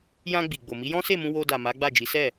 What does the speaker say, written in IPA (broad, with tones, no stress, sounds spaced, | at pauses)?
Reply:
j ã˧ ɡ͡b i˨ ɡ͡b o˨ m i˨˦ j ɔ̃˦ s e˦˨ m ũ˧ w o˧ d a˨ m a˨˦ ɡ͡b a˦˨ d͡ʒ i˨˦ s ɛ˦˨